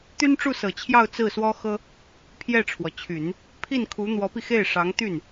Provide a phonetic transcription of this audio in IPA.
t̪y˥nʈ͡ʂu˥˩sɤ˨˩t͡ɕʰjɑ˥˧ʊ̯ t͡sɹ̩˥˩swɔ˥xɤ˥ | pʰjɛ˥˩ʈ͡ʂʰwɔ˩t͡ɕʰy˨˩˦n | pʰi˥˩nkʰu˧˥ n̪wɔ˧˥pi˧xe˥˩ɪ̯ʂɑ˧˥ŋ t̪y˥˩n

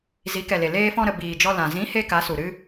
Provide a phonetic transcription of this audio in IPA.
zi˨˦kɛ˨le˨ leː˧fɔ̃˧ɾə˨ biː˨d͡ʒɔ˧ lã˨ zĩ˨˦ he˦ka˨˦su˨ ɾɨ˦

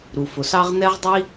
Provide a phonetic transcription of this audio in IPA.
ɾu˩fʊ˩sɑ˥ʁ n̪ɛ˥ʁdˤi˥

